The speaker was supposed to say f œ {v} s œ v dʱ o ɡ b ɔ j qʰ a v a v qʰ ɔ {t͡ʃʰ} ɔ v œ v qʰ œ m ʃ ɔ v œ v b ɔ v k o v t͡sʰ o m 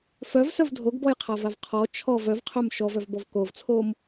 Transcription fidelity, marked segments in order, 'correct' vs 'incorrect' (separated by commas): correct, correct